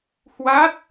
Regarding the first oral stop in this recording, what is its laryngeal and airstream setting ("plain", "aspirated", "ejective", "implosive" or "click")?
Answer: plain